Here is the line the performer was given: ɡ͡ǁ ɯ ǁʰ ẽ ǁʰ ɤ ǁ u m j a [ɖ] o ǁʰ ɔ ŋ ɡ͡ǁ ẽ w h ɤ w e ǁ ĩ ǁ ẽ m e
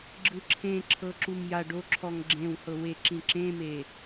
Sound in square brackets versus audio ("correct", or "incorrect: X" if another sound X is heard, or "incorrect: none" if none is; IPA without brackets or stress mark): correct